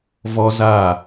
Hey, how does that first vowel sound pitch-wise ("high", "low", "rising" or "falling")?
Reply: high